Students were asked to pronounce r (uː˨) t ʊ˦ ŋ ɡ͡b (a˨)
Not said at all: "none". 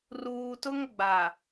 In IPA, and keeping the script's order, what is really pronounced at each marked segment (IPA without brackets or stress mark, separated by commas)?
uː˨, a˨